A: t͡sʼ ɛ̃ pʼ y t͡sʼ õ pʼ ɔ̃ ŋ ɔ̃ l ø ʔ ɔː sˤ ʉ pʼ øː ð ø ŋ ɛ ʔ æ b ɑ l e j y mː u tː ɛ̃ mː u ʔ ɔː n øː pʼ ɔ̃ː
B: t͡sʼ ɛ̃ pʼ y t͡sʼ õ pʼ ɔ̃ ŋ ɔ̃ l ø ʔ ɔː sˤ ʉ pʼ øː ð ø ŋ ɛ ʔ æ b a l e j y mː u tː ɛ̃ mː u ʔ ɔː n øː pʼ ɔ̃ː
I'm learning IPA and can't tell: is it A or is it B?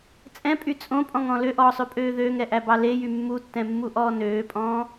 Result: A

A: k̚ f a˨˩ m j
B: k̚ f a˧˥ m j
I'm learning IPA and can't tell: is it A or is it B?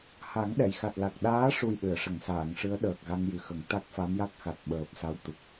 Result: B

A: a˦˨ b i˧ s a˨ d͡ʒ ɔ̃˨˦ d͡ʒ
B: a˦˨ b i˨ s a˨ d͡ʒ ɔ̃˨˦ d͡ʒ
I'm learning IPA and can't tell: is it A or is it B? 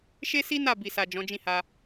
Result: B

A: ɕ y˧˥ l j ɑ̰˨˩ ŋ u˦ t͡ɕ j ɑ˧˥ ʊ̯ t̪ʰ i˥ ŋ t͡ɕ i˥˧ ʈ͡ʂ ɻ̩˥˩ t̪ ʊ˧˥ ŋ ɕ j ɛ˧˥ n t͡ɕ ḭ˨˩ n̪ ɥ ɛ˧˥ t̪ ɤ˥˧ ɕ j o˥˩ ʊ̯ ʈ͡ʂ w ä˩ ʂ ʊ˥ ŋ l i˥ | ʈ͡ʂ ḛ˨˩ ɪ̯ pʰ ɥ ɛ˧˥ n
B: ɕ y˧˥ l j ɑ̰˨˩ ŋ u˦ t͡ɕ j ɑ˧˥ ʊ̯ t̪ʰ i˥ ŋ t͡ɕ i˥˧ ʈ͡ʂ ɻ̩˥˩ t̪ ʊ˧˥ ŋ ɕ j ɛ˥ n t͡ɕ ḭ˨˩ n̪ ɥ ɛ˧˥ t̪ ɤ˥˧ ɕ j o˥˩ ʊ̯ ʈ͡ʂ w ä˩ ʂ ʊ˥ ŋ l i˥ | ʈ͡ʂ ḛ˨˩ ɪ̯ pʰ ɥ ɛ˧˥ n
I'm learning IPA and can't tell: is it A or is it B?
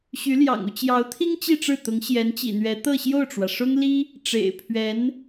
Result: A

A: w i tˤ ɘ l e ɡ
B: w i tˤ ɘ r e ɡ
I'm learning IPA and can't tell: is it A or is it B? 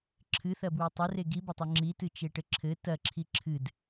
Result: B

